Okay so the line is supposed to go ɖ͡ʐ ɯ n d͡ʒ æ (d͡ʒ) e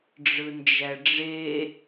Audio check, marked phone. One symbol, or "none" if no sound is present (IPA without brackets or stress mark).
ɖ͡ʐ